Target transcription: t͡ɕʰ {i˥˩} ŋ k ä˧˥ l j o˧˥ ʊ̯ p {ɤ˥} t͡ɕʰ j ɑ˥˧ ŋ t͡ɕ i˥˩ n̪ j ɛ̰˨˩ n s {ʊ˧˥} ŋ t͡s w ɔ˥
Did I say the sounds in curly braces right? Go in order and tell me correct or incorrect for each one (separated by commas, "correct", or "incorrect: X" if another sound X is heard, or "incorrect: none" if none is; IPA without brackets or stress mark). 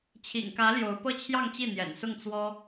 incorrect: ḭ˨˩, correct, incorrect: ʊ˥˩